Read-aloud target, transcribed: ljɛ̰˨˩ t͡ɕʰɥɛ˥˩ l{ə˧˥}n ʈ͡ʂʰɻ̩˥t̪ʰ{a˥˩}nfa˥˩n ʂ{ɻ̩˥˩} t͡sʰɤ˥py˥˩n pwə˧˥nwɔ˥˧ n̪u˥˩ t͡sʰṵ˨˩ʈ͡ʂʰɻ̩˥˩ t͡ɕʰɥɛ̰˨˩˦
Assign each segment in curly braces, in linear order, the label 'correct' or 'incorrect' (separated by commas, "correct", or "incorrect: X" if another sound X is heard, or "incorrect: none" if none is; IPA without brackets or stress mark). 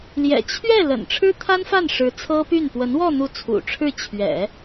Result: incorrect: ə̰˨˩, incorrect: a˥, incorrect: ɻ̩˧˥